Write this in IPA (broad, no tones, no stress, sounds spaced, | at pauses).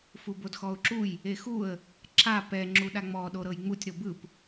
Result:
f u b o d x ɔ ʊ̯ ǁ u j | e x u ə̯ | ǁ a p ɛ ŋ͡ǁ u ɗ a ŋ͡m ɔ ɗ o ɾ ɤ j ŋ͡m u tʲ ɾ o b ɯ p